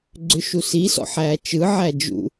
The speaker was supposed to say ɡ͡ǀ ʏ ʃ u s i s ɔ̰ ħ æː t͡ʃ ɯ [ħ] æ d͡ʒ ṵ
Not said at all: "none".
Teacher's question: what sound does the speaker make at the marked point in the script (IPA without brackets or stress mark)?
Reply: ʕ